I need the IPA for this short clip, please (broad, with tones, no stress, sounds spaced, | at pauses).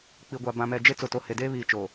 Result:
k͡p i˨ ɡʷ a˨ b ã˨ m ɛ˨ d͡ʒ e˦ t͡s ʊ˨ t o˨ h e˨ d eː˦ β iː˨ t͡ʃ oː˨